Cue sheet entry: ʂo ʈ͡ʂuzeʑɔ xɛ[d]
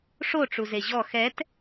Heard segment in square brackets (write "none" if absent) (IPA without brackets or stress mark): t